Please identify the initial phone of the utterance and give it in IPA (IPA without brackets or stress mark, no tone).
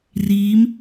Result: r